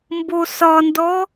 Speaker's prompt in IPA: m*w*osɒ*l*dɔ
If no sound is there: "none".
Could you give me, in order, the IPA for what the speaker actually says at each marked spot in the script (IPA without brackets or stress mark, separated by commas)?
b, n